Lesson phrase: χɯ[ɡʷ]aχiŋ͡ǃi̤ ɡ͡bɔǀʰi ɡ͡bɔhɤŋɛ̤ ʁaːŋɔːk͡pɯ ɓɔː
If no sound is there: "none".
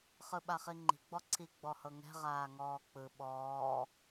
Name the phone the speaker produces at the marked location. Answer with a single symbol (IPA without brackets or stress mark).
ɓ